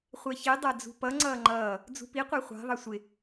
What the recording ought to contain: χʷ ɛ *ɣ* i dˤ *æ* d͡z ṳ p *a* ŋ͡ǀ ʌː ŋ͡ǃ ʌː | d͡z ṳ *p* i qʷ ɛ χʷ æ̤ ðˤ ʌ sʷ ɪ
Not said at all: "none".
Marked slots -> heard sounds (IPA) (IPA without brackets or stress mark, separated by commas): ç, æ, ʌ, p